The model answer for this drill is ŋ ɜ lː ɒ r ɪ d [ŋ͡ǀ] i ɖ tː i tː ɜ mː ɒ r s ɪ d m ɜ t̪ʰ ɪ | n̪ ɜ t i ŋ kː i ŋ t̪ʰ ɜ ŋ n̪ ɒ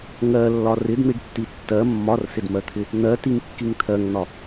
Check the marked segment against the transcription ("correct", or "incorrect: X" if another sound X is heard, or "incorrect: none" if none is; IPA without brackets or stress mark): incorrect: n̪